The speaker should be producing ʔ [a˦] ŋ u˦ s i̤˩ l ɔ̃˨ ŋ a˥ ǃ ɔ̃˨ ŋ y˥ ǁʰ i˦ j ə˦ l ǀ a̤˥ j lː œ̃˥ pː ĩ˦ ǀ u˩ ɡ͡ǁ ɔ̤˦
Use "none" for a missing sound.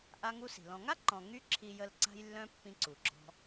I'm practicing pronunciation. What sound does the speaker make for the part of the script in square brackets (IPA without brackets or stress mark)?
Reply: a˦